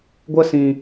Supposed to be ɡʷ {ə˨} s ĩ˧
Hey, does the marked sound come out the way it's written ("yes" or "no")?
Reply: no